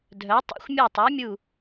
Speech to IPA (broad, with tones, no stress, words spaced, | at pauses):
dʱœ˨˥tˤa̰˦xʷ mʲo˦˨tˤa˨˥mʲu˦˨